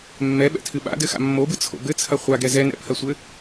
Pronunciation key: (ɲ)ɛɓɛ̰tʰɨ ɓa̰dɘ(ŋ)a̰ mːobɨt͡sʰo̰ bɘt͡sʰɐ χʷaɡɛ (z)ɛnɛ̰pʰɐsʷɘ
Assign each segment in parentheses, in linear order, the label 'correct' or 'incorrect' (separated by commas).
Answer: incorrect, incorrect, correct